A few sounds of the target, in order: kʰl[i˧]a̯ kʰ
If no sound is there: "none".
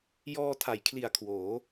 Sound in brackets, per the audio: i˨˩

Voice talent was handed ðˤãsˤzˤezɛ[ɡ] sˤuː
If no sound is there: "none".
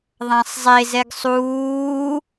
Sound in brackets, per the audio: ɡ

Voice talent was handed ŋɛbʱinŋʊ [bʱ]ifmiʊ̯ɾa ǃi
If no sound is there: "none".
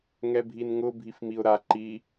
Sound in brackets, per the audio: bʱ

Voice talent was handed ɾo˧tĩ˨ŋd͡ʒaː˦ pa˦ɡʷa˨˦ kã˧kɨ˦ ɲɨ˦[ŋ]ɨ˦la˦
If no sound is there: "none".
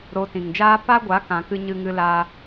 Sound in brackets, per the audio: ŋ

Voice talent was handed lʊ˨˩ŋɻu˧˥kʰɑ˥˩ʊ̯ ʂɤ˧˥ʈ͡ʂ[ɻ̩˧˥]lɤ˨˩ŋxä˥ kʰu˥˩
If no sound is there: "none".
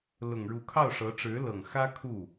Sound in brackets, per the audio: ɻ̩˧˥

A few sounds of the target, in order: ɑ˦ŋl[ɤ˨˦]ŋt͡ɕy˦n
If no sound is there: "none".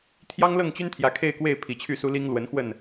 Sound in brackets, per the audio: ɤ˥˨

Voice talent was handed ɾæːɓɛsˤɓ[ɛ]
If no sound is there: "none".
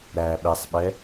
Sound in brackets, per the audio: ɛ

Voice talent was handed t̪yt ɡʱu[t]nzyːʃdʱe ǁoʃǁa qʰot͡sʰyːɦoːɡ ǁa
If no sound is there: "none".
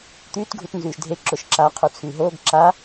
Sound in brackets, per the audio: t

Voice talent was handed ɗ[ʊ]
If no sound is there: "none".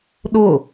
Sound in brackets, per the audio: ʊ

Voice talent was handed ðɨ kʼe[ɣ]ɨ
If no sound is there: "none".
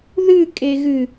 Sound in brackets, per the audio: ɣ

